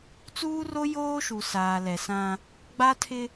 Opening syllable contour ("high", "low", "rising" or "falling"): high